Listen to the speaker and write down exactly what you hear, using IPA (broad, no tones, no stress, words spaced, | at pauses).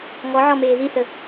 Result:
ŋɔʕɔmeː ðiθə